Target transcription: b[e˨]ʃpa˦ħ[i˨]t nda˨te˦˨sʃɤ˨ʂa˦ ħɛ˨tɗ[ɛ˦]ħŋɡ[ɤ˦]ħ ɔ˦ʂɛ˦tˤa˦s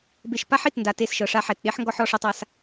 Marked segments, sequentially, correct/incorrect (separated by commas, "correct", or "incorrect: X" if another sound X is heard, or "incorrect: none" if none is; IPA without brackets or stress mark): correct, correct, incorrect: e˦, incorrect: ɔ˦